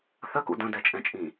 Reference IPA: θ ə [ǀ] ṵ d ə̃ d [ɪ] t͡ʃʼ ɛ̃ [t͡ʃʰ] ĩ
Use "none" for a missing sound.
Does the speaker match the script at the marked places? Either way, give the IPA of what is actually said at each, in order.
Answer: k, ɛ, t͡ʃʼ

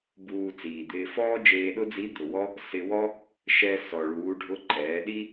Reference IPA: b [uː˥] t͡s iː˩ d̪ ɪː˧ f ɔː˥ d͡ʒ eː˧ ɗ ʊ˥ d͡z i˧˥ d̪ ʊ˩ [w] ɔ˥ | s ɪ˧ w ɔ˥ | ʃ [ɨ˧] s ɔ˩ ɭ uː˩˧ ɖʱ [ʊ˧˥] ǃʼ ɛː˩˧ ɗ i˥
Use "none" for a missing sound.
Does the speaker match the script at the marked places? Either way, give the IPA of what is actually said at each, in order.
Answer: uː˧, w, ɛ˧, ʊ˧˥

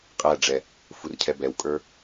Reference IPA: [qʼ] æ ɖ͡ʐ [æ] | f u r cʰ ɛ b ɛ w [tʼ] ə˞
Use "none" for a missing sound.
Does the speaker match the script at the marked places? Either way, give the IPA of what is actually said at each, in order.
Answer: qʼ, ɛ, kʼ

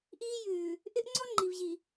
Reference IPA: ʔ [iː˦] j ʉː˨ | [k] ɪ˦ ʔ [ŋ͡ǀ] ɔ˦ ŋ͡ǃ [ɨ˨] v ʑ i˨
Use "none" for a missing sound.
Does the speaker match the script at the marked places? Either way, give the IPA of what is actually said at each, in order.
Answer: iː˦, ʔ, ŋ͡ǀ, i˨

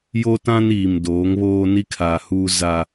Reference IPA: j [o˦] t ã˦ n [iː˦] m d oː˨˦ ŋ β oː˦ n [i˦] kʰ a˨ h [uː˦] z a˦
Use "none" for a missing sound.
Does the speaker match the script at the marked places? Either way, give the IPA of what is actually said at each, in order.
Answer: o˦, iː˨, i˦, uː˦

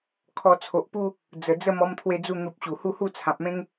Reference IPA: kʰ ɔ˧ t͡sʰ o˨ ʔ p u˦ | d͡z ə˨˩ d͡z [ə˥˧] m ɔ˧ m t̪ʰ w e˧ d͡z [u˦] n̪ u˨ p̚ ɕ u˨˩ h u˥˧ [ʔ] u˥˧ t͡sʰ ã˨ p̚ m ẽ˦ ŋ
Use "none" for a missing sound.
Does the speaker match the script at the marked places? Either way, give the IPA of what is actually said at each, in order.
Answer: ə˥˧, u˧, h

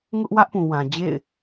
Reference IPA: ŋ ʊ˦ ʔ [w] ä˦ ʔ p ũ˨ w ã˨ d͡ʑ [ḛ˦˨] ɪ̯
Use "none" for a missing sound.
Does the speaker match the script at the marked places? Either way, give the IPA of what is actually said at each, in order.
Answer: w, ḛ˦˨

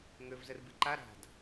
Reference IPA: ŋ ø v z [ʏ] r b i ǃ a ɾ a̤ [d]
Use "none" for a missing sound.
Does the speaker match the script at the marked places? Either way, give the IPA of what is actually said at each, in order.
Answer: ə, d

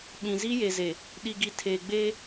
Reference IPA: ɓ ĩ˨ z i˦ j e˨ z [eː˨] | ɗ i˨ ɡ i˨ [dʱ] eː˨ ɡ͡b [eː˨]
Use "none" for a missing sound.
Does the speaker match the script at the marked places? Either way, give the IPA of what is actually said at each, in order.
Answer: e˨, tʰ, eː˦

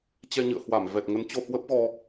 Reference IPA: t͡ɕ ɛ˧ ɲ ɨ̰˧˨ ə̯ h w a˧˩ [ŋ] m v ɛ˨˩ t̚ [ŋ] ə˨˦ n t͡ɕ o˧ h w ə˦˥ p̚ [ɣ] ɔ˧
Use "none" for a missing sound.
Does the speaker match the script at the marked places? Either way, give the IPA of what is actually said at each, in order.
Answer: none, ŋ, ɣ

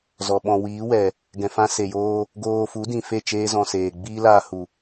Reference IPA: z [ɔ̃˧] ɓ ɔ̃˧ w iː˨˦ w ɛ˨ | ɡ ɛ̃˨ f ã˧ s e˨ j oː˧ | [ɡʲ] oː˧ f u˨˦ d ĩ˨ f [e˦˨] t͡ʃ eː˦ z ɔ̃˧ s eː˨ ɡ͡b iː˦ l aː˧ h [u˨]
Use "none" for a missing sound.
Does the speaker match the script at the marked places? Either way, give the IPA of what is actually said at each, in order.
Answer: ɔ˧, ɡ, e˦˨, u˨

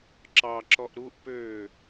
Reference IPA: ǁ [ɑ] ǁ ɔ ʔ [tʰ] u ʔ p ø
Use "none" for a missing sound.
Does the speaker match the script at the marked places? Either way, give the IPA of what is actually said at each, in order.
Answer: ɑ, ɾ

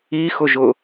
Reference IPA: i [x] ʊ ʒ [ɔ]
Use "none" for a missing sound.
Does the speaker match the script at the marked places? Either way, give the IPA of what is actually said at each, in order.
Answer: x, ʊ

